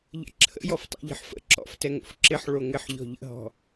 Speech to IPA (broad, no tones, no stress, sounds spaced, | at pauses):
ʎ ə̰ ǁʰ ə̰ j ɔ f tˤ ɛ̰ ʎ ə̤ ħ f ə̰ ǁ ɔ̰ f t ɛ ŋ o̰ f ǁ ɪ ħ ɭ o ŋ ɪ ħ ʎ ɔ̤ ʎ ə̰ ɦ ɔ̤